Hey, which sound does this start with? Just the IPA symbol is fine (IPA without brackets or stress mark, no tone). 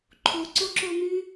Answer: ǃʰ